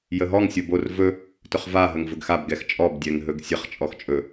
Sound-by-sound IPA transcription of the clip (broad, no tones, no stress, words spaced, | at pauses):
jəɦɔŋ sʲobor vɵ | tɵχva ɦəŋvɵɡxab ɡɛxt͡ʃʼɔb dʲɛŋɦɵɡsʲəχ t͡ʃʼɔxt͡ʃʼɵ